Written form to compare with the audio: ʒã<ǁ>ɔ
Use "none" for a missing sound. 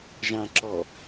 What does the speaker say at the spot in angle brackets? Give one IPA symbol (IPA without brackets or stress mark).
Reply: ǁ